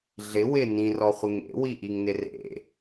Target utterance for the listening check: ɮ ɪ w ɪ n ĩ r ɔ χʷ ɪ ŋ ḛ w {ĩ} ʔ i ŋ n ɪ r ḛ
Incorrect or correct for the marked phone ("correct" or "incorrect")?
incorrect